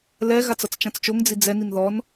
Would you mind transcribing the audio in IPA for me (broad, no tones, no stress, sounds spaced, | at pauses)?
l ɛ ɣ a t͡s ʌ t͡s t͡ʃ ã t͡s t͡ʃ o ŋ d͡z i d͡z ɛ n i n ð ɔ n